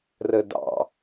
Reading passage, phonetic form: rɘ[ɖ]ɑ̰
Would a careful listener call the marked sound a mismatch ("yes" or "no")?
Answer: yes